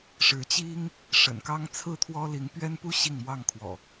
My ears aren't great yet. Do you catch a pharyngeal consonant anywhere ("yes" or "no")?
no